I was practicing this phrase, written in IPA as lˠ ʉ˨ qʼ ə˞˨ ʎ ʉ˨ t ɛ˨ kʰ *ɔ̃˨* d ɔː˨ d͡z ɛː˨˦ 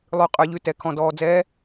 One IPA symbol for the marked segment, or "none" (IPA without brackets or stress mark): ɔ̃˨